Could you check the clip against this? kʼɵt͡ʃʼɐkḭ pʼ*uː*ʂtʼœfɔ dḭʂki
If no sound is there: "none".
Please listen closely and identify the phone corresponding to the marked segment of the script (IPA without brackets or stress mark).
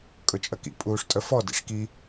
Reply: uː